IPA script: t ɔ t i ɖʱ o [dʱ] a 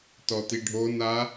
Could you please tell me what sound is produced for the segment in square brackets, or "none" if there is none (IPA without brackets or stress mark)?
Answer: n